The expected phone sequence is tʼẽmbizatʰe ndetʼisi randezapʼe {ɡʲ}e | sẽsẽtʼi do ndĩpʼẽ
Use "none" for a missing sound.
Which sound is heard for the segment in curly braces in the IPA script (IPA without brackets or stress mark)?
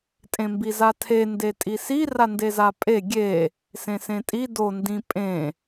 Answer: ɡʲ